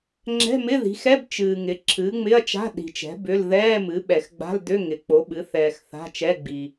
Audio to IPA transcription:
ŋ͡ǁɛ̤˧˥˧mɪ˧˥˧ði̤˩˥xɛ˧˥˧b t͡ʃɨː˨ŋɪ˩˥ ǁʰɨː˩˥ŋ͡mɪ˧˥˧ɐ̯t͡ʃa̤˧˥˧ ɗi̤˨t͡ʃɛ̤˩˥ bʏ˧˥˧l ðɛː˧˥˧mɨ˩˥ɓɛ˨x ɡ͡ba̤˧˥˧ldʏ˧˥˧ ŋɪ˩˥k͡po˩˥ɓɨ˩˥ θɛː˨x θa̤˧˥˧t͡ʃɛ˧˥˧ ɡ͡bi˨

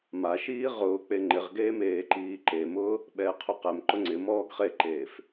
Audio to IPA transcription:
maʃiː ʁʊː k͡peŋ͡ǃɪʁɡeː meːǃiːǃemʊː | ɓɛːqʰuqɛmǃʊ ŋ͡ǀɪmɔːɡ χeǃeːf

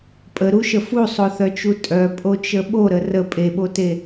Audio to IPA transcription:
pʼəɾuʃə fusˤoθœt͡ʃu tʼœpʼot͡ʃə ɓoɾə rə pʼeɓote

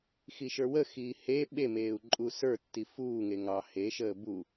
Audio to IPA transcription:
xiʃə˞wəxiː he ɓemeːu̯ ǃʼusə˞tːi fuːŋe ŋɑ heʃəː bu

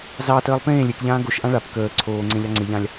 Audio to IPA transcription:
zɑtəːlˠ pẽː lʲekʎãː ɡoʃʔã ɭap kəː ǀʰoːŋ͡ǀẽʎɑ ŋ͡ǀɪʎãlʲ

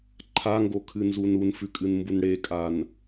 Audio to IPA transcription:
ǃʰaŋɡokʰɨnzun unfʉkʼɨnmbun ɽekʼan

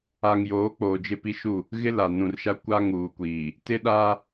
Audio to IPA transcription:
a˨ŋjoː˨˦ k͡poː˨d͡ʒɪ˦pi˦ʃu˦˨ | ɣɪ˦la˨ nũ˨rʃa˦ kʷa˦ŋuː˨kʷiː˨ | tɪ˦ɗa˦

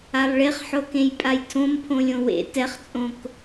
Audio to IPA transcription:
alˠɭeχħokẽj pʼajtʰõm pʰõlʲõwḛ tɛχt͡sʼõk

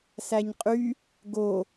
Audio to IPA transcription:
sæɲqʼy | ɡo

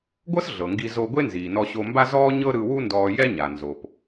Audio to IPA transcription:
ɡʷɤ˥s ɮɤ˩ŋɡi˧ zo˧ɡʷe˥ nziː˩nɔ˧ɕo˧mba˥ zɔː˥ɲɤ˥ɾɯ˧ wu˥ndɔː˧jɛ˥ɲa˩ nzo˩p

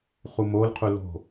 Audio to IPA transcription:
χumolqʰu lo̤

